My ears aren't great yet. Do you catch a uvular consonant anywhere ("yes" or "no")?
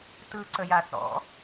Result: no